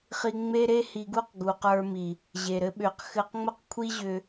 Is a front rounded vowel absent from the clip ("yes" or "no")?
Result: no